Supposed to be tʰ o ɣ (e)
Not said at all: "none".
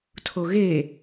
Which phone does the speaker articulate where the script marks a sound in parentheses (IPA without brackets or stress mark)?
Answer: e